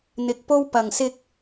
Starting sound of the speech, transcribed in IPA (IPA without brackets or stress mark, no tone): n̪